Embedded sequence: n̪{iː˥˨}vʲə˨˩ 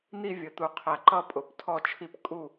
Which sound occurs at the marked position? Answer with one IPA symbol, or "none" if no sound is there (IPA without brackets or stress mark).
i˥˨